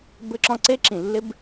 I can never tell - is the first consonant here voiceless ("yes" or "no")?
no